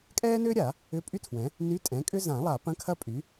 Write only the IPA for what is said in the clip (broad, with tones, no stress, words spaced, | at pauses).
kʼɛː˥nʏː˥ɾʲa˨˩˦ | ʏ˧˥˧pʼy˥tʰwɛ̃˩˥ | ny˧˥˧tʼɛ̃˩˥kʼʏ˥ zã˨˩˦lˠa˨˩˦ pɐ̃˧˥˧kʰɐ˥pʼy˩˥